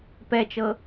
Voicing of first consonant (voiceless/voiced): voiceless